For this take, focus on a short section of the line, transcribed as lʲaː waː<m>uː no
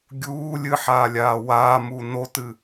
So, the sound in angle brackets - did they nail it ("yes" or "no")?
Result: yes